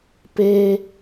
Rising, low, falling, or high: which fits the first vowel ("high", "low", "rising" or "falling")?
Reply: high